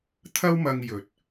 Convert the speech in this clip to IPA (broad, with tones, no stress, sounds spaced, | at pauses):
t̪ʰ ɐ˥ w m ɐ˧ ŋ j ɵ˨ t̚